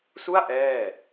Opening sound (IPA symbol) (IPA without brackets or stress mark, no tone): s